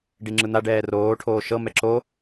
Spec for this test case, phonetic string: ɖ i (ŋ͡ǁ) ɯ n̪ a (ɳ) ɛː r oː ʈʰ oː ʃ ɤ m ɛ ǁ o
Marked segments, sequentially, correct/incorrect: correct, incorrect

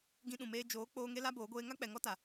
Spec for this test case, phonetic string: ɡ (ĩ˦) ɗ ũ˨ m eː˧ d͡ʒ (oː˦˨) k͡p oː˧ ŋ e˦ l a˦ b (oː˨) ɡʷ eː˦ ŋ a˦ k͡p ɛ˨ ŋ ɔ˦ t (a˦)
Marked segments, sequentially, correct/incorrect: incorrect, incorrect, incorrect, incorrect

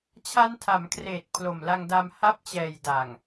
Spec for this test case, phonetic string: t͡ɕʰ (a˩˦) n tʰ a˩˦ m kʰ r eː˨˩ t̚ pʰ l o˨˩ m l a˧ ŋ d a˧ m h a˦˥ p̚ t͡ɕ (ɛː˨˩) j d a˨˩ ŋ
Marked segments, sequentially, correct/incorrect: incorrect, correct

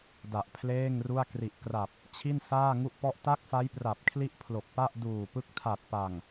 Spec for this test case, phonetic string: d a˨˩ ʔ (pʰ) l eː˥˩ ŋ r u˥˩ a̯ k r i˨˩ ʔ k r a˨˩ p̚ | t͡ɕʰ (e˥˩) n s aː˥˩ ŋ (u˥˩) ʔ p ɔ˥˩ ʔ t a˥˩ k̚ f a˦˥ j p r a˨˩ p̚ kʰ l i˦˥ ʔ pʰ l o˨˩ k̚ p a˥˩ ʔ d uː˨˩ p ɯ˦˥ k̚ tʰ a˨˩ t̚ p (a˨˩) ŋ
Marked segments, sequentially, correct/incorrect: correct, incorrect, correct, correct

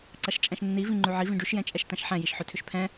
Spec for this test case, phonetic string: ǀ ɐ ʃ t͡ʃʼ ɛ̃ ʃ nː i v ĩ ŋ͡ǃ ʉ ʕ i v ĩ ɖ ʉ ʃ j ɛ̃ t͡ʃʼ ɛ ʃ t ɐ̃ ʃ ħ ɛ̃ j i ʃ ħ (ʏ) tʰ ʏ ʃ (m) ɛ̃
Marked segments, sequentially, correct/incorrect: correct, incorrect

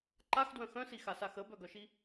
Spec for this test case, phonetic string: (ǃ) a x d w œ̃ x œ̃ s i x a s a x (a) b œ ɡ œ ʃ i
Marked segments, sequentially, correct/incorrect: correct, incorrect

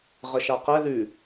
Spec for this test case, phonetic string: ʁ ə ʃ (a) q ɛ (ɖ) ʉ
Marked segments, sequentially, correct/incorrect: correct, incorrect

